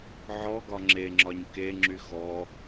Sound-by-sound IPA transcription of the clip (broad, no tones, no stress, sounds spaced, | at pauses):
ʕ ɔ ɡ ɒ ŋ͡ǁ e ŋ͡ǁ ɒ ɲ k e ŋ͡ǁ y x ɔ